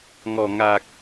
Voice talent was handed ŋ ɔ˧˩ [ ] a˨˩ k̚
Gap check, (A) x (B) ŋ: B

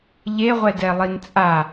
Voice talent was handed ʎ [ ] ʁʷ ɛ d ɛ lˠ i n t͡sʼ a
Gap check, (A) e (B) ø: A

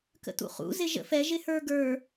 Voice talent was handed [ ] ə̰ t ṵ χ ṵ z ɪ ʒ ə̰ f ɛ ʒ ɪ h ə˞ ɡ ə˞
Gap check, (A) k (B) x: A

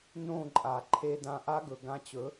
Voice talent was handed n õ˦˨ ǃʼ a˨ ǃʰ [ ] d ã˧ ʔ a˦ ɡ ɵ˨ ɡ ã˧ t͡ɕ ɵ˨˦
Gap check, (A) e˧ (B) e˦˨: A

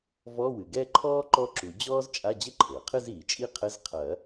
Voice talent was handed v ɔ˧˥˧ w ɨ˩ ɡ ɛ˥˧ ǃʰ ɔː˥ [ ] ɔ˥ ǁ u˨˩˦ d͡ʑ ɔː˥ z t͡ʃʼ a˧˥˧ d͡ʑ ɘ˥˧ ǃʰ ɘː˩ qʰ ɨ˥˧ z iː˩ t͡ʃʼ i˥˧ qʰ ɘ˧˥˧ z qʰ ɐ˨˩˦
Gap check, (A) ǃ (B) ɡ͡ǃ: A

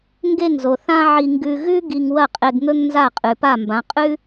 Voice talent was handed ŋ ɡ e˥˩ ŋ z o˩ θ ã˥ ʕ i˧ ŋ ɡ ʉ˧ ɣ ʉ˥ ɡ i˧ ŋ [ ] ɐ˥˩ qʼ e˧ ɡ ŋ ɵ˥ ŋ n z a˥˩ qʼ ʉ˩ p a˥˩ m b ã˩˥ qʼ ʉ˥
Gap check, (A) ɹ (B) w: B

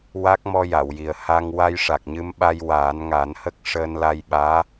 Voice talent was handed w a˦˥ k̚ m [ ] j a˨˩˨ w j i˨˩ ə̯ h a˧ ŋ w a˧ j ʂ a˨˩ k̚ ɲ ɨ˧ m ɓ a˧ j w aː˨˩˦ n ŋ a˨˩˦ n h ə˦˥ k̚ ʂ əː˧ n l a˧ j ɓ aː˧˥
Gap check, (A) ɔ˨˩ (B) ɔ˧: B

